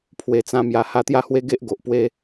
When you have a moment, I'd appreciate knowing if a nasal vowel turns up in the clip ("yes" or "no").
yes